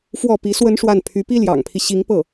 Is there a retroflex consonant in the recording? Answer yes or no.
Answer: yes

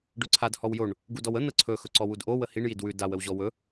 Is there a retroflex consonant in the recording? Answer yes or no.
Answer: yes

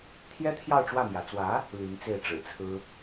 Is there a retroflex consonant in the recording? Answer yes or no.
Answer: yes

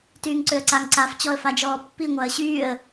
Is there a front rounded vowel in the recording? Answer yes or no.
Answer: yes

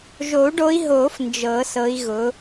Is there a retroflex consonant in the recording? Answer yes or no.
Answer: yes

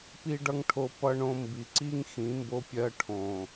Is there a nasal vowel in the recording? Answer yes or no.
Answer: yes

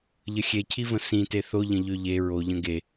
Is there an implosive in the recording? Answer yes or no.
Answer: no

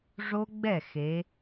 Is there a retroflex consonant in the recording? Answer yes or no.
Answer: yes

